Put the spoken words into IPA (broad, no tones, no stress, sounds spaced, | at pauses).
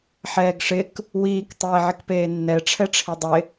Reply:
ħ ɛː ɡ ʂ ɪ k | w iː k tˤ eː ʕ ɪ k p eː nː ɛ ʈ͡ʂʰ ɛ ʈ͡ʂʰ i dˤ ɪ